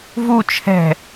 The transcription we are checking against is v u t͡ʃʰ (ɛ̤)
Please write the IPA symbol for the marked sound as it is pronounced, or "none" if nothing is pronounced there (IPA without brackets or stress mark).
ɛ̤